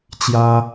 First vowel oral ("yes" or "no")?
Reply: yes